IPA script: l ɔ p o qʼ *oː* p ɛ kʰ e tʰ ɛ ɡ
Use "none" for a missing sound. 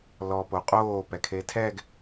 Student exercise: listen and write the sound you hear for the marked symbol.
oː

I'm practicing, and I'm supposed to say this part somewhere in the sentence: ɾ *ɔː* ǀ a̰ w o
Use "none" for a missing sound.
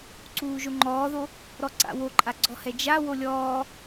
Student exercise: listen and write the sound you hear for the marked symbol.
ɔ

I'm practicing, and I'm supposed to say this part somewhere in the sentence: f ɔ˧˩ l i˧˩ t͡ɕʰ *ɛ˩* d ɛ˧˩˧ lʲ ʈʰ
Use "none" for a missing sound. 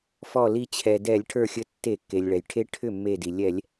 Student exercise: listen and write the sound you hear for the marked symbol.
ɛ˩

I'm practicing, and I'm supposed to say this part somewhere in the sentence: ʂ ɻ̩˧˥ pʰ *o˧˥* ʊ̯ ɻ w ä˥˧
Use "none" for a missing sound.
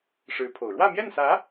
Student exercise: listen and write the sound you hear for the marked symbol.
o˨˩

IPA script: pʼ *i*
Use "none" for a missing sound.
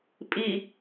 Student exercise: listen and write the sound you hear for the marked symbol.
i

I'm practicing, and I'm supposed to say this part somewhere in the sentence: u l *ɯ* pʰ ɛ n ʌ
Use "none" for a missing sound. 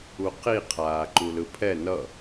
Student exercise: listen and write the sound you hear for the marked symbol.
ɯ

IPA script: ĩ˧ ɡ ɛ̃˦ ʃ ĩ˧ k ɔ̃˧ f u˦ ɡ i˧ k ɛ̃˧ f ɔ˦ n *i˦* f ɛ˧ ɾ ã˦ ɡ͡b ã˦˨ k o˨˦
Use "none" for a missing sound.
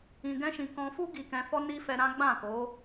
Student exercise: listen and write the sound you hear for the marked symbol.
i˦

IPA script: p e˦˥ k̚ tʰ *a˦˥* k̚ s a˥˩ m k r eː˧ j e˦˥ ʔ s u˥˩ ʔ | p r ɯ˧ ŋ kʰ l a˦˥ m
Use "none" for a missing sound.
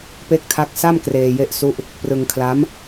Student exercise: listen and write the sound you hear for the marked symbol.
a˦˥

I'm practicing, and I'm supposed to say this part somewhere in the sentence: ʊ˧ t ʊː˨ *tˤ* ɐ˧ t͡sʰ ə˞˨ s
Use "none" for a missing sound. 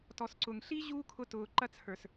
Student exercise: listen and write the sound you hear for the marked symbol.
ǃ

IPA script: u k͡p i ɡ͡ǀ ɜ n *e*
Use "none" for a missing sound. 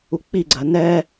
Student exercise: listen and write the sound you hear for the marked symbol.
ɛ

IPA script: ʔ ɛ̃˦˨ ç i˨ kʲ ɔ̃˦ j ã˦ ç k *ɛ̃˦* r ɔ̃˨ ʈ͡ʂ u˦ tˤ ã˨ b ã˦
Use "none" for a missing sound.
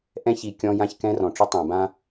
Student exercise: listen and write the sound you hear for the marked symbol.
ɛ̃˦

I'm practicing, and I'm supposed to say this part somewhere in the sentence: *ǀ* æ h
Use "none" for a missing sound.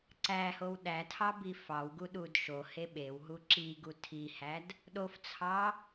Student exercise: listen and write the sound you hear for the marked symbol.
ǀ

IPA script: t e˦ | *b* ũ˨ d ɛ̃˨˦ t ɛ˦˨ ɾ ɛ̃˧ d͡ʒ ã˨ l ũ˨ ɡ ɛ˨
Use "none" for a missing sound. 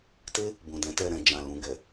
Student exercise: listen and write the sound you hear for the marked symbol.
b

